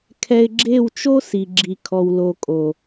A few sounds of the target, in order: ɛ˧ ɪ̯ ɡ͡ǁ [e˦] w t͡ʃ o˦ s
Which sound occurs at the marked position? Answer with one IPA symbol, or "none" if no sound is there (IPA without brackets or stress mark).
e˦˨